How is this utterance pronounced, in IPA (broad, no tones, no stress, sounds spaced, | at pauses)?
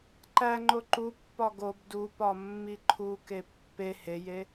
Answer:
ǃ æ ŋ͡ǃ o ǃ u pː ɒ ɡ o b d u p ɒ mː i ǃʰ u k e pː e h e j e